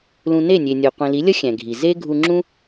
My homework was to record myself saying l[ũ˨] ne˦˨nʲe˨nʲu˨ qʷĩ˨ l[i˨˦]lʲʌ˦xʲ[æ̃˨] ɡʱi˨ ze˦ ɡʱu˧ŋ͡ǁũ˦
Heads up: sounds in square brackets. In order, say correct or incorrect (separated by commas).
correct, correct, correct